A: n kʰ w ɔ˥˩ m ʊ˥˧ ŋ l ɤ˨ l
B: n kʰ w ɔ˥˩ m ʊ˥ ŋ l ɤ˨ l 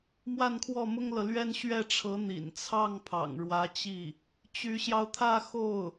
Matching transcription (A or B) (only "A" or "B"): B